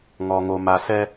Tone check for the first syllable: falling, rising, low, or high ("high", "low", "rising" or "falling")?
low